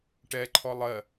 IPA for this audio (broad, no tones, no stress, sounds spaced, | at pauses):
ʈ ɛ ǃʰ ɔ lˠ ɜ